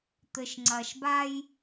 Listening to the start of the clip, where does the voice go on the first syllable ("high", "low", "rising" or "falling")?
low